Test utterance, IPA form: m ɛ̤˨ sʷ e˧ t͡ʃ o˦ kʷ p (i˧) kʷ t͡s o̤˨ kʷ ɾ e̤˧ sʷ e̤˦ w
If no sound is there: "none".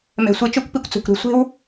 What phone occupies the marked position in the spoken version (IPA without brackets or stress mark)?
i˧